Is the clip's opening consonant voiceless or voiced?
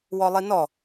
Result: voiced